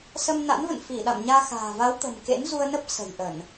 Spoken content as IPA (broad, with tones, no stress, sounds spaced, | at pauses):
s ə˧ m n a̰˧˥ n v ə̰˧˨ n f i˧˩ ɗ a̰˧˨ m ɲ aː˧ x a̤ː˨˩ v a˨˦ w t̪ ə̤˨˩ m k ḛ˧˥ n z u˧ ə̯ n ə˦˥ p̚ s ə̤˨˩ j ʔ ə˧˩˨ n